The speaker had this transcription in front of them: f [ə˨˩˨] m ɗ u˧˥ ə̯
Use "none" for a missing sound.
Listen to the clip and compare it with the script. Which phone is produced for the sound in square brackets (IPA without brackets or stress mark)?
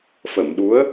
ə˨˩˨